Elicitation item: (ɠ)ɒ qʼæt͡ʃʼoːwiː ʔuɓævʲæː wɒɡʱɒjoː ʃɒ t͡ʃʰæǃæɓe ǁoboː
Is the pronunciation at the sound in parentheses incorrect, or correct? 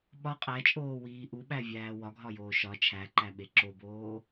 incorrect